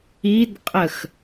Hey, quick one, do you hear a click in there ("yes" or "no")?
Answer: no